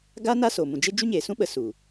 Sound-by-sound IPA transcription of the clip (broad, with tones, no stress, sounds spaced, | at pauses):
ɡ aː˦ n aː˦ s oː˨ m ũ˨ d͡ʒ e˦ d͡ʒ u˦ ɲ eː˨ s ũ˦ ɓ ə˨ s u˨